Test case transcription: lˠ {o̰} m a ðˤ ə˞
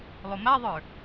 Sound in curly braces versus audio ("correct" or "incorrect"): incorrect